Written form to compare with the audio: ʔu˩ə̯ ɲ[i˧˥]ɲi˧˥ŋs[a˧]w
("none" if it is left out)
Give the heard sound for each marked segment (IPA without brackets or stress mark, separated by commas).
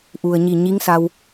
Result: i˧˩, a˧